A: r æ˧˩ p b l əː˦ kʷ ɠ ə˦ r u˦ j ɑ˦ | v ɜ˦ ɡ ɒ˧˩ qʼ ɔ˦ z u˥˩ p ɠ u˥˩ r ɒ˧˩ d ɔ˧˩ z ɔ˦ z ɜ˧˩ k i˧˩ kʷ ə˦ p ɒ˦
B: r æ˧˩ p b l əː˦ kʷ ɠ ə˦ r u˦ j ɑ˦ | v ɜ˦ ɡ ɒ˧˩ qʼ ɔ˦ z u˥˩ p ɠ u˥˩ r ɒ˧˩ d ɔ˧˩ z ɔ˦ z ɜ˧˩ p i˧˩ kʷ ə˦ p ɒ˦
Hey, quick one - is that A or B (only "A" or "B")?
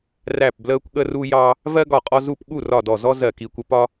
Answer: A